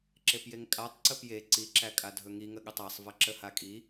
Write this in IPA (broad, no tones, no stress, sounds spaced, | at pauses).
ǁ e p j e ŋ kʼ a tˤ ǀ ə p j e ǀ i ǁ æ kʼ a dʱ ɵ ŋ i ŋ ə ɠ ə tˤ æ sˤ v ɐ ǁ ə h a kʼ i